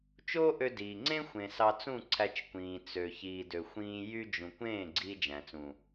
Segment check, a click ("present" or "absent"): present